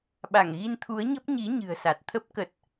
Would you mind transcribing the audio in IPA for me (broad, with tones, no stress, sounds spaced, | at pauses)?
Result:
ɓ a˧˩ ŋ ɣ i˧ n t̪ʰ u˨˦ ə̯ ɲ ə˦˥ p̚ ɲ i˨˦ ɲ ɨ̤˨˩ ə̯ s a˨˩ t̚ t̪ʰ ə˦˥ p̚ k ə˨˩ t̚